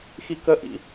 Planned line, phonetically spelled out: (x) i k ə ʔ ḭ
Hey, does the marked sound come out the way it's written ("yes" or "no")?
yes